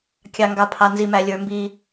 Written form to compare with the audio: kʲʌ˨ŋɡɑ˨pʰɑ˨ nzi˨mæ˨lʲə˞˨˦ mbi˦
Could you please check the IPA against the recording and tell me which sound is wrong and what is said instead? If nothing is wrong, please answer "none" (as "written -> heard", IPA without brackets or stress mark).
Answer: ʌ˨ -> ɑ˨